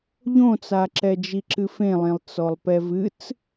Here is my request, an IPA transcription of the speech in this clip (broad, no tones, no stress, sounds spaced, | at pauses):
ʎ õ t͡s a ǁ ɛ d͡ʒ i ǁ ɨ f ẽ lˠ ẽ lˠ t͡s ɔ lˠ p ɛ v ɨ t͡s